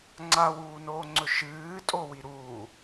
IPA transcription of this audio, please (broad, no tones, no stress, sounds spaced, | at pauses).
ŋ͡ǀ a w uː n oː ŋ͡ǀ ɵ ʃ ɨː tʼ o w i ɾ uː